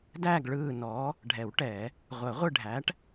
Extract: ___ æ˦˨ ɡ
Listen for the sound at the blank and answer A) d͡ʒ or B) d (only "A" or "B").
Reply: B